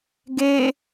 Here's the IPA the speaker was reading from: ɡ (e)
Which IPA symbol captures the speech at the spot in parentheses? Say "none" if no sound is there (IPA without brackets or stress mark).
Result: e